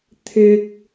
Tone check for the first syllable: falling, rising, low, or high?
high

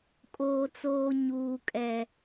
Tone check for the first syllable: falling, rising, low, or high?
low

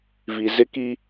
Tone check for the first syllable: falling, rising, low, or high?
low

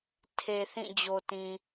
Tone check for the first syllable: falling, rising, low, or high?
low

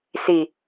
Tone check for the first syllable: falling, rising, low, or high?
low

